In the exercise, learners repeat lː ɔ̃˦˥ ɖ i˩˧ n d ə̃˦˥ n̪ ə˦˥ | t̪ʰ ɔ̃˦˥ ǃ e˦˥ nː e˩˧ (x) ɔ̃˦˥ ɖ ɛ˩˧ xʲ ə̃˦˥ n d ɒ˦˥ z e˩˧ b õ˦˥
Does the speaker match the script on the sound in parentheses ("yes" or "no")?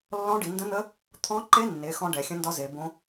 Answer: yes